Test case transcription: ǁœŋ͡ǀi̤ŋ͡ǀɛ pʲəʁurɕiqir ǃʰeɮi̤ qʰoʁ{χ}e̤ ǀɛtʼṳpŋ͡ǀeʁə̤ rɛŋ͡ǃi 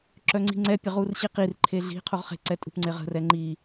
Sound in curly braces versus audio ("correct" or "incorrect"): correct